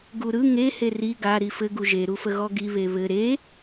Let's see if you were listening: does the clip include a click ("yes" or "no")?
no